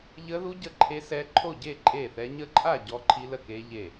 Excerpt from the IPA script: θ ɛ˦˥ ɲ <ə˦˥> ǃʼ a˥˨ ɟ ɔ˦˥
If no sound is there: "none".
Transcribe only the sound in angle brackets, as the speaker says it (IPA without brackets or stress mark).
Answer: ə˦˥